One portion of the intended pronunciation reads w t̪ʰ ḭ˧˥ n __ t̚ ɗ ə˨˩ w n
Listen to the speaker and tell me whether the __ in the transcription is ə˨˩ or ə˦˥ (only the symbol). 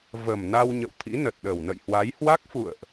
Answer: ə˨˩